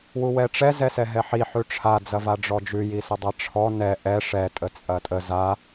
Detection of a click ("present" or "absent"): absent